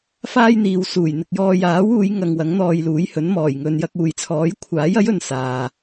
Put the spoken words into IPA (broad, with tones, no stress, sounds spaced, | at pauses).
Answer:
f aː˥ j n̪ iː˨ w s uː˨˩ j n̪ ɪ˨ k̚ j ɔː˧ j aː˨˥ w uː˨˧ j ŋ ɐ˨ ŋ w ɐ˨˥ ŋ n̪ ɔː˧ j l uː˨˥ j h ɵ˨˥ n m ɔː˨˩ j ŋ ɵ˧ n j ɐ˧ k̚ uː˨ j t͡sʰ ɔː˨˥ j kʷʰ aː˨˥ j ɐ˨˥ j ɵ˨ n s aː˨